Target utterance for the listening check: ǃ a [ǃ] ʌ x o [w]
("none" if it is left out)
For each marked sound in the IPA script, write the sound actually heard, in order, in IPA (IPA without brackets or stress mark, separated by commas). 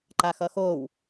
x, w